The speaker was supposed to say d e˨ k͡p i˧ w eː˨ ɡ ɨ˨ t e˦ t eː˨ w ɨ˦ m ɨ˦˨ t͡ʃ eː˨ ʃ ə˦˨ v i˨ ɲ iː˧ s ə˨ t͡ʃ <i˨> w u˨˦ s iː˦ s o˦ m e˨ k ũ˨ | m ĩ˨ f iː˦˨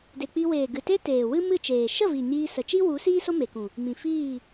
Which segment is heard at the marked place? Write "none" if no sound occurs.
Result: i˦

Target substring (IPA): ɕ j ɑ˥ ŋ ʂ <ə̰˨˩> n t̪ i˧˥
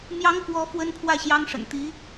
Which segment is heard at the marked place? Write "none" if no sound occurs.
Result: ə̰˨˩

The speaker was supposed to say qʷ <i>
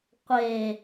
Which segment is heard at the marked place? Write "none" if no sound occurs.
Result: e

